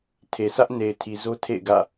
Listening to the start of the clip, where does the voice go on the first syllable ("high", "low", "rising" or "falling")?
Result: low